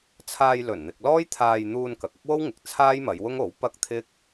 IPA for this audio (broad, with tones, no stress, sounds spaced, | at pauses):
t͡sʰ aː˧ j l ɵ˨˩ n n̪ ɪ˨ k̚ l ɔː˥ j t̪ʰ aː˧ j n̪ uː˧ n k ɐ˨ k̚ ɐ˥ k̚ w o˥ w ŋ ɪ˨˥ k̚ t͡sʰ aː˥ j m ɐ˨˧ j w ʊ˥ ŋ o˨˥ w p ɐ˥ k̚ t̪ʰ ɪ˥ k̚